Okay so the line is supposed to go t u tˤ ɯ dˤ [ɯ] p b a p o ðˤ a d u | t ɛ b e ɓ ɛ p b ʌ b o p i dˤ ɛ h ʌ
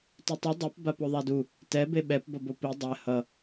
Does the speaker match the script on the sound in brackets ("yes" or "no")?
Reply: yes